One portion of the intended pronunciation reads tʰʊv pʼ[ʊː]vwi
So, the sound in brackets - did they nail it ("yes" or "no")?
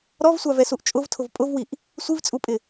no